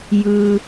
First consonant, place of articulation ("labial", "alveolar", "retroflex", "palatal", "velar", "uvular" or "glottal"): palatal